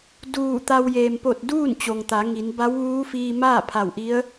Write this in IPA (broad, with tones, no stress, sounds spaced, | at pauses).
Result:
d uː˧˩ t̪ a˧ w j eː˩ m p o˧˩ t̚ d uː˥˨ n t͡ɕ o˩ ŋ t̪ a˩˧ ŋ i˩˧ n b a˧˥ w ʋ uː˧˥ f iː˧ m aː˥˨ pʰ a˧˩ w ʔ i˧˥ ə̯